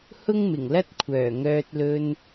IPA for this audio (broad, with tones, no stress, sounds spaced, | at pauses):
h ʊ˥ ŋ m ɪ˨˩ ŋ l ɐ˥ t̚ kʷʰ œː˨˩ ŋ œː˧ t̚ l ɵ˧ n